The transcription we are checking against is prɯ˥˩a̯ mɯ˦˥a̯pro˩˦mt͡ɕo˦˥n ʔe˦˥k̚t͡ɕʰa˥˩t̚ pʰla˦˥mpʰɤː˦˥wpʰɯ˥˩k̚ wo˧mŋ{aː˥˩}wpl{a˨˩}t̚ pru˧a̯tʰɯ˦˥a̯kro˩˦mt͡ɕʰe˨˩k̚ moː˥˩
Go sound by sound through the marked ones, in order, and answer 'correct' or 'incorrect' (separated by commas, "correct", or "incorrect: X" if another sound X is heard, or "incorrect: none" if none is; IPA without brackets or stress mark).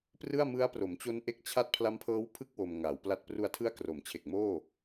incorrect: aː˩˦, incorrect: a˥˩